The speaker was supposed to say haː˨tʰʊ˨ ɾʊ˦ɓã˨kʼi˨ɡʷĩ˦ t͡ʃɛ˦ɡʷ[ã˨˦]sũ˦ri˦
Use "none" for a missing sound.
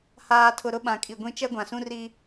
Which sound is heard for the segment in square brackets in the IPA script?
ã˨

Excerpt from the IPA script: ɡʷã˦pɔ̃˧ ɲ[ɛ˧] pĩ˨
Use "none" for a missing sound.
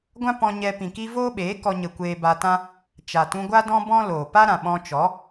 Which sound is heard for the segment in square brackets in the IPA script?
ɛ˧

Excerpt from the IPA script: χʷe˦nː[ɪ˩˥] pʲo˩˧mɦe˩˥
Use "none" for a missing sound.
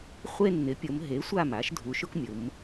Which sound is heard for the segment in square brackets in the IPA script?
ɪ˩˥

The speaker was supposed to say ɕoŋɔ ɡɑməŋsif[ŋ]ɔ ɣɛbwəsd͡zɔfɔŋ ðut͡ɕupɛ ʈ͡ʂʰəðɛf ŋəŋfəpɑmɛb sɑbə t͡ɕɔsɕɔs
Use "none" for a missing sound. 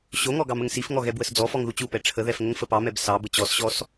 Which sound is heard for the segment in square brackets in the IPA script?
ŋ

